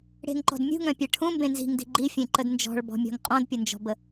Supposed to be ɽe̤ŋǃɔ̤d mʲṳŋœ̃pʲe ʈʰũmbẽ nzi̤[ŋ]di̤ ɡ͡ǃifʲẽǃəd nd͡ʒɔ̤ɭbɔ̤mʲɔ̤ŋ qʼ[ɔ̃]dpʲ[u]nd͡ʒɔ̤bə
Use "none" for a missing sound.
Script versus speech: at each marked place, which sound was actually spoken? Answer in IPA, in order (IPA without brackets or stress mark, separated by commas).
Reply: ŋ, ɔ̃, ʊ